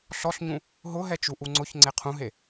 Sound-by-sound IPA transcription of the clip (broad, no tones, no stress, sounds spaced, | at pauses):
ɬ ɔ ɬ ɲ ũ | ɦ ʊ ɦ ɛ t͡ʃ u ʔ u ŋ͡ǀ ʊ ç ŋ͡ǀ e qʰ ũ ɦ e